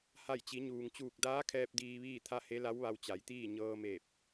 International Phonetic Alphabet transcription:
h a˧˩ j t͡ɕ i˩˧ ɲ uː˩ ŋ t͡ɕ uː˧˩ k̚ d aː˧˥ kʰ ɛː˧ p̚ d iː˧ ʋ iː˥˨ t̪ʰ a˥˨ h e˧˥ l a˧˥ w ʋ a˧ w t͡ɕ a˩˧ j t̪ iː˥˨ ɲ ɤː˧ m eː˧˩ p̚

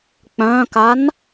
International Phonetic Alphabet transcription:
k͡p œ̃ k a n

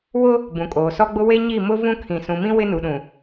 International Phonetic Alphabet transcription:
w ʊ˦ | b ũ˨ kʼ oː˨ s ɔ˦ ɡ͡b ʊ˦ w e˦ ɲ i˦˨ m ʊ˦ v ũ˦ kʰ ĩ˨ s ũ˨ m ĩ˦ w ɪ˦ n u˨ ɗ ũ˨

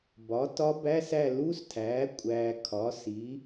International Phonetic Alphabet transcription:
b ɒ˩˥ t ɒ˧˥ b æ˧˥˧ s æ˦˨ l u˧˥˧ s tʰ æː˩˥ kʷʼ æː˨ kʰ ɒ˩˥ s i˩˥

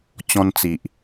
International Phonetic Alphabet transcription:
t͡ɕ ɔ̃˧ n t͡s i˨ ʔ

